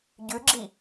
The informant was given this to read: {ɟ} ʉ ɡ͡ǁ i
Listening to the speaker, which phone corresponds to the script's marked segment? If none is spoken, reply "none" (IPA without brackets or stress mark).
ɟ